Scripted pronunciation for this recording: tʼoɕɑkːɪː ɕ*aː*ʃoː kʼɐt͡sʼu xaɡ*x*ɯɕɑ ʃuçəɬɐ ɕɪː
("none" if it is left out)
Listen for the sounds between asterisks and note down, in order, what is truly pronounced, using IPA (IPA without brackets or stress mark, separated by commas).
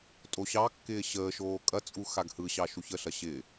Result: əː, h